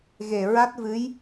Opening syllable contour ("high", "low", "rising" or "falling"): low